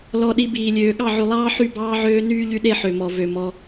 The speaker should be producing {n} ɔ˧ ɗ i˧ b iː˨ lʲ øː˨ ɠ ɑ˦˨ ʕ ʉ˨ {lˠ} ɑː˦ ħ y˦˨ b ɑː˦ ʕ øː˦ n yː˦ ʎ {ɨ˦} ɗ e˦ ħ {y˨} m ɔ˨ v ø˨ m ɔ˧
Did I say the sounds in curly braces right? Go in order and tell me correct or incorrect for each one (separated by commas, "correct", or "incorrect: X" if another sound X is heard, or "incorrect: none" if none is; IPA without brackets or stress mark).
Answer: incorrect: l, correct, incorrect: y˦, incorrect: ø˨